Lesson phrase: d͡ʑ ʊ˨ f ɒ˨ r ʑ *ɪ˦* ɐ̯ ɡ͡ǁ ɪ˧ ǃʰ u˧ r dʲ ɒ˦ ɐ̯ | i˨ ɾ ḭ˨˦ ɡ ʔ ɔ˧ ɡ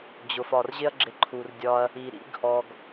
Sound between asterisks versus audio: correct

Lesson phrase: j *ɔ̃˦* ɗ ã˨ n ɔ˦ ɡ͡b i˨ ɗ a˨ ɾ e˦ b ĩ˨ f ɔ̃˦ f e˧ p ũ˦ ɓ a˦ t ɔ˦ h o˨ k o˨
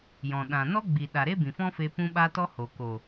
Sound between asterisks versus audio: incorrect: ɔ̃˨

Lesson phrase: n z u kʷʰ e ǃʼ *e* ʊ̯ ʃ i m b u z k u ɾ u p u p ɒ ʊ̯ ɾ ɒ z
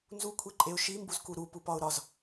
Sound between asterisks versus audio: correct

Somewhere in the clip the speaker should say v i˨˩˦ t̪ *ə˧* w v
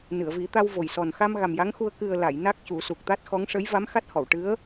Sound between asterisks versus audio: incorrect: a˧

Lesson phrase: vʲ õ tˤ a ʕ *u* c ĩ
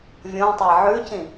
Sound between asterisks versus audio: incorrect: ʉ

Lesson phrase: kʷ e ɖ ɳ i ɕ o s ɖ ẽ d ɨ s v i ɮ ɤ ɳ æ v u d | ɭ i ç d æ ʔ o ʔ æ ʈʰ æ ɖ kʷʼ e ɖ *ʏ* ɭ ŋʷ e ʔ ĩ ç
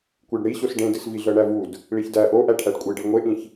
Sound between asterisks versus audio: incorrect: ɨ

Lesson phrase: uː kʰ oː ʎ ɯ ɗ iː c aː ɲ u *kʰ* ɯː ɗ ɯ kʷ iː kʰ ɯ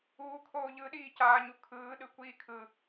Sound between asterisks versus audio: correct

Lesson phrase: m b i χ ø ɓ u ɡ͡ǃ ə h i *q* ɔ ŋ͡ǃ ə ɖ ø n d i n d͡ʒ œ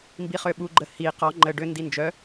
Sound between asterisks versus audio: correct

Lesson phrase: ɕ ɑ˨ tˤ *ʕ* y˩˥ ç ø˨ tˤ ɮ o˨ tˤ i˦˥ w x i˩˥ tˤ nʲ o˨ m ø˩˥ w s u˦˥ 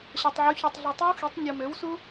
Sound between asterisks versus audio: correct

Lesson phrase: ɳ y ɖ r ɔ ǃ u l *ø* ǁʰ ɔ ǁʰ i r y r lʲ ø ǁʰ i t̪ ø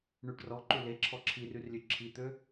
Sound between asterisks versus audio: incorrect: e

